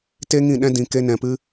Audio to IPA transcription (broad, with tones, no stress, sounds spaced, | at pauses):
t e˦ ŋ ĩ˦˨ ɗ ɛ̃˦ d ĩ˧ k e˦ n ɛ̃˧ p ɨ˦